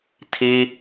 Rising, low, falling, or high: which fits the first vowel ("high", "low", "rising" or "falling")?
high